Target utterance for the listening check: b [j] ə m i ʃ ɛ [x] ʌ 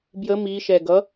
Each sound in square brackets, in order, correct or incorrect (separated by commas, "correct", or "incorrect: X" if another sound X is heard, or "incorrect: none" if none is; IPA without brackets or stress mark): correct, incorrect: ɡ